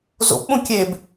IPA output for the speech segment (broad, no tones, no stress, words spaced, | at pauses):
zo̰pɓõ kʲeb